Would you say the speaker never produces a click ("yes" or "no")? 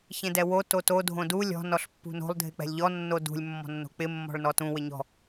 yes